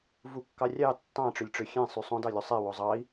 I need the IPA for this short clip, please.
v u kː ɑ rʲ ɑ tː ɑ̃ ʈ͡ʂ ø lʲ ʈ͡ʂ ø xʲ ẽ sˤ y sˤ õ d ɑ lʲ u sˤ e w o zˤ ɑ i̯

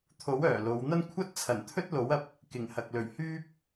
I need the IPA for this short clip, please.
t̪ʰ o˨˥ w œː˨˩ l o˨˧ w n̪ ɐ˥ n kʷʰ ɐ˥ t̚ t͡sʰ ɐ˨˩ n t̪ʰ ɵ˥ t̚ l o˨˥ w ɐ˧ p̚ | k ɪ˨˩ ŋ h ɐ˨ k̚ l ɵ˨˩ ɥ h yː˥ p̚

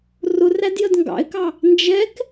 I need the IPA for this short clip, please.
r ʊ r æ d j ə d ŋ ɡ ɑ̰ ɪ̯ k ɑ | n d͡ʒ ɛ k

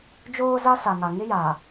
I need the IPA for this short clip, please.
d͡ʒ oː˦ z a˦ s a˨ ŋ a˨ ŋ ɪ˦ j aː˨

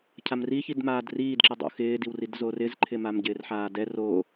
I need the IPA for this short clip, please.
cʰ a m r i ç i d m aː d r iː d ǁ ɪ dˤ o̰ x ɪː d i w r i d z o r ɪ z ǃʰ ɪ m a m ɟ ɪː r ħ aː d ɛ r o

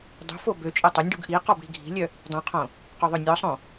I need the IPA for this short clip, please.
dˤ ṳ f o b ø t͡ʃʼ o tˤ ø nʲ ɖ u ɡ ʔ i q ɔ b ɽ i̤ ɡʱ i̤ lʲ œ | dˤ õ qʰ õ | q o ðˤ ø nʲ ɔ sˤ õ

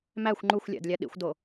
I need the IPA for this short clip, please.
m æ xʷ ŋ͡ǃ u xʷ lʲ æ̰ d lʲ æ ɗ ḭ xʷ d o

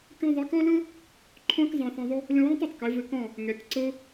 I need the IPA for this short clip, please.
k ɛ̃˧ ðˤ ɛ˨˦ k ɔ˦ l ɤ˦ | ǃʰ ɔ̃˦ k zˤ ɛ̃˧ θ ɛ̃˧ ðˤ ʊ˦ | l ə̃˧ w ə̃˦ tˤ ɘ˨ tˤ k ɘ˨˦ v ɘ˧ k ɔ̃˦˨ | ŋ ɛ˨ k ǀ ɤ˧

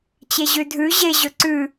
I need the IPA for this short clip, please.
t͡ɕ e ʑ ʉ dʱ ʉ ʑ e ʑ ɵ ǀ ʉ

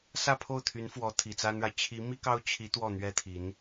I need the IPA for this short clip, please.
s ä˥˧ pʰ o˥˩ ʊ̯ t̪ʰ y˧˥ n f w ɔ˧˥ t̪ʰ i˨˩ t͡s a˥ n ɻ a˨ ɪ̯ t͡ɕʰ i˧˥ m i˥ k ɑ˥ ʊ̯ t͡ɕʰ i˧˥ t̪ w ɔ˥˩ n̪ ɥ ɛ˥ t̪ʰ i˧˥ n

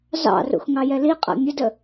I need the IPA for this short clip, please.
z ɑ̰ r ṵ x ŋ ɑ j ɛ l i qʼ a̰ mʲ ə d ə

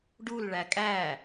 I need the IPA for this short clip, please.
ɖ u l ɭ æ kʼ æ

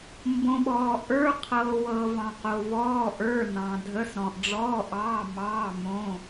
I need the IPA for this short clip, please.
m b õ˩ ɓ ɔː˩ ʔ ə˞˩˧˩ qʰ ɤː˩ w ɤː˩ v ɑ̃˩ q o˩ v ɔː˩˧˩ ʔ ə˞˩˧˩ n ɑ̃˩ dʱ ə˩˧˩ s ɾ ɔ̃˩ ʔ ɖ͡ʐ ɔː˩˧˩ ʔ ɑː˩˧˩ m ɑː˩˧˩ m õ˩˧˩

